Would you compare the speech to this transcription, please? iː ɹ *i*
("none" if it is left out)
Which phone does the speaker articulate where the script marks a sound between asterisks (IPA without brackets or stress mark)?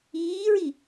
i